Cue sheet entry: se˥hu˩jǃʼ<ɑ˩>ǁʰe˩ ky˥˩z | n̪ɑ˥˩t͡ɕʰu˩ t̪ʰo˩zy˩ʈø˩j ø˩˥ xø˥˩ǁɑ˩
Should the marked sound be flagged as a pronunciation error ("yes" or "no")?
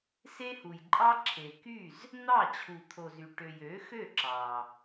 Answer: yes